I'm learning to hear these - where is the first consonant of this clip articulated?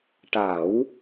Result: retroflex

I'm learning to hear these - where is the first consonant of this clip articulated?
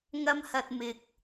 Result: velum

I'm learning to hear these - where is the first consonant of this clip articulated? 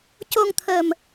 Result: palate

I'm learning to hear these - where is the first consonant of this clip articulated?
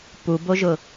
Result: lips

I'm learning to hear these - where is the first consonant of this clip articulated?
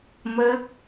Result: lips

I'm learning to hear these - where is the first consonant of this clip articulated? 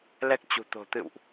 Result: tongue tip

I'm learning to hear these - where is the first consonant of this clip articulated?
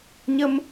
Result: palate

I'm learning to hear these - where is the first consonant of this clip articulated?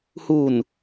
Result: throat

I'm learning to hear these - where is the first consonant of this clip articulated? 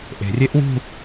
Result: throat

